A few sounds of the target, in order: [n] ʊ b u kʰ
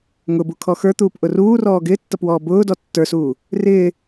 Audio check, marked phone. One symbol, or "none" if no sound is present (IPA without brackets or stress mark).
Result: ŋ